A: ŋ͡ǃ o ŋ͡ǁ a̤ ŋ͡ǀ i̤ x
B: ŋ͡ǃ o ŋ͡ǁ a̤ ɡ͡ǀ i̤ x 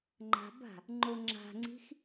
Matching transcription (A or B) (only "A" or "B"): A